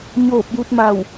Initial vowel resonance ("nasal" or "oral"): oral